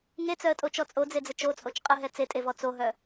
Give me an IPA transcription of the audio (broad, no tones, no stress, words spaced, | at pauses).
ŋet͡sœə̯tʼot͡ʃɔ t͡sʼod͡zed͡zə t͡ʃot͡sʼot͡ʃ qʼəɦɛ t͡setʼevɔ t͡soɦœ